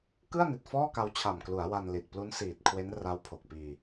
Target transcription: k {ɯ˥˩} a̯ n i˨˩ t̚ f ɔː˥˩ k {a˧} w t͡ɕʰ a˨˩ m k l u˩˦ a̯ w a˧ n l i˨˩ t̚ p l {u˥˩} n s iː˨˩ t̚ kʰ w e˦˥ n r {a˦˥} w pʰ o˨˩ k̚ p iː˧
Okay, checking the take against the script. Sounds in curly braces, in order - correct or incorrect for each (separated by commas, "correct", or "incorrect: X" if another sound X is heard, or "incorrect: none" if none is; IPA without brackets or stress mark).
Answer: correct, correct, incorrect: u˦˥, correct